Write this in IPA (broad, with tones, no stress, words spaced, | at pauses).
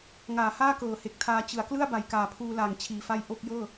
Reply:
ŋaː˩˦haː˥˩ kɤː˨˩he˨˩k̚tʰaː˧ t͡ɕɯ˩˦a̯ klɯ˥˩a̯ba˨˩j kaː˨˩pʰuː˧laː˨˩ŋ t͡ɕʰiː˨˩fa˥˩j ʔo˥˩k̚jɤː˥˩